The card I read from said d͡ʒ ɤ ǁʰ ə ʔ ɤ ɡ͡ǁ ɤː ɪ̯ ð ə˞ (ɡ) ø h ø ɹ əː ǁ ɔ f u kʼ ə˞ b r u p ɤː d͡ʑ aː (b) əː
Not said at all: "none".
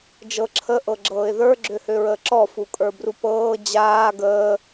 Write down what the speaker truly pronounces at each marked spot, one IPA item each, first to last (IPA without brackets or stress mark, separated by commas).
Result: ɡ͡ǁ, ɡ